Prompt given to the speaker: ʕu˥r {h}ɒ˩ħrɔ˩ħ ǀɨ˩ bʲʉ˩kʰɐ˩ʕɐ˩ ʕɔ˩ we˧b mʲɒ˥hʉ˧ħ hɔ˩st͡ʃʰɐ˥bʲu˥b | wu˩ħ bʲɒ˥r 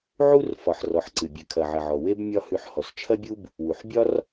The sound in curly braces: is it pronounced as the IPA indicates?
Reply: no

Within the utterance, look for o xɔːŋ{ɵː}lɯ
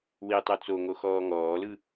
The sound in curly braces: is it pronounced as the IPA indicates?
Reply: no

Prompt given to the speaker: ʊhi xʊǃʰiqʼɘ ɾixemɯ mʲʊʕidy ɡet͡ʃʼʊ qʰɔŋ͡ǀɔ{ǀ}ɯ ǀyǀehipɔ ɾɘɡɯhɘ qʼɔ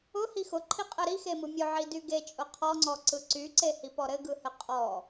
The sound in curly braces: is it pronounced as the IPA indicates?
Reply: yes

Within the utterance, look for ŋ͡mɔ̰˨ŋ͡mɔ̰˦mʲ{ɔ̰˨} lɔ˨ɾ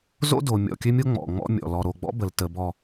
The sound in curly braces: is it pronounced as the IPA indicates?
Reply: yes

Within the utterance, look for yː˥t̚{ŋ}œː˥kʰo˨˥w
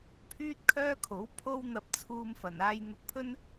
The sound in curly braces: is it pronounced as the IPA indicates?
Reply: no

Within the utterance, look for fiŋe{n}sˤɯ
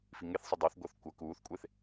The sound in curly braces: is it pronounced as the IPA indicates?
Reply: no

